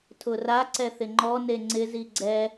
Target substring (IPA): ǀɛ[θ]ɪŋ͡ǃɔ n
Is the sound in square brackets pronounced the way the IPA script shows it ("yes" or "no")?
yes